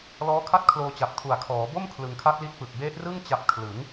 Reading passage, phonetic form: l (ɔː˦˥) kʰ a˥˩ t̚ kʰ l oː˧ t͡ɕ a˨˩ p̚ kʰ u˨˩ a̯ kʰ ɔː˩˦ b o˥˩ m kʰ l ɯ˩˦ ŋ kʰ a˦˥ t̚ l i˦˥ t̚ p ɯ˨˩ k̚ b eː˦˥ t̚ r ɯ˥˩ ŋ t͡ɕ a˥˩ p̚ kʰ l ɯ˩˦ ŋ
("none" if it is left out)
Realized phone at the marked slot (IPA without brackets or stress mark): ɔː˦˥